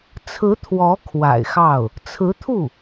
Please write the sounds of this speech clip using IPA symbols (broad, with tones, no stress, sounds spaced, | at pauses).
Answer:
t͡sʰ ɹ̩˧˥ t̪ʰ w ɔ˧˥ kʰ w a̰˨˩ ɪ̯ x ɑ˥˩ ʊ̯ | t͡sʰ ɹ̩˧˥ t̪ʰ u˥˩